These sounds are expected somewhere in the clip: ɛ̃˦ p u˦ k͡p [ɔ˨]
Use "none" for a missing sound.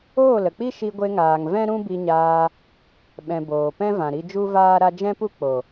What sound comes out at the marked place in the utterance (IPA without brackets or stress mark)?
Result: o˨